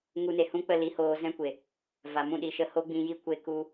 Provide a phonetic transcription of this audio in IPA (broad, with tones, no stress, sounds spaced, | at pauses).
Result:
ŋ u˧ n e˨ h ũ˦ k͡p ə˦˨ l i˧ h oː˧ z ɛ̃˦ kʷ e˨ | v a˨ m ũ˦˨ ɗ i˧ ʃ ə˧ h o˦ ɡ͡b ĩ˧ j i˦ kʷ e˦ k u˦